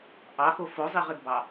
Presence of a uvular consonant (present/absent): present